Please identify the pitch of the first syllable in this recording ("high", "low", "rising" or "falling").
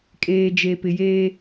low